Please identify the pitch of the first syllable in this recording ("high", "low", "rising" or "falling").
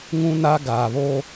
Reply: high